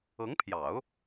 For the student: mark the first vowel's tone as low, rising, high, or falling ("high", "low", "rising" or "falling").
rising